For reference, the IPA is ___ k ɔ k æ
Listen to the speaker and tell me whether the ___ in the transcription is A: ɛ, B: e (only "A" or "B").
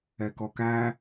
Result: A